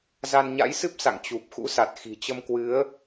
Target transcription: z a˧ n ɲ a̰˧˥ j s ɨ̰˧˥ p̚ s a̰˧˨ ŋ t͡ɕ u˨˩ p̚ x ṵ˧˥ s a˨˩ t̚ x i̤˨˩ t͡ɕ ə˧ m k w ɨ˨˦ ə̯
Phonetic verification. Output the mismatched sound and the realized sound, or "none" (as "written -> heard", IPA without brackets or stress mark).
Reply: ɨ̰˧˥ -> ɨ˦˥